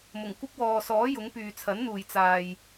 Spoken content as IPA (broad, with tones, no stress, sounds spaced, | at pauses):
m ʊ˨˩ ŋ kʷ ɪ˥ k̚ w ɔː˨ s ɔː˨˥ j ʊ˨˥ ŋ p yː˨ t͡sʰ ɐ˨˥ n n̪ uː˨ j t͡s aː˨ j